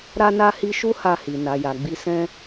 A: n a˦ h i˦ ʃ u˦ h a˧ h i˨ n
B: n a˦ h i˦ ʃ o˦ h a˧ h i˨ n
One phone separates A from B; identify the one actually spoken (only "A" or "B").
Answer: A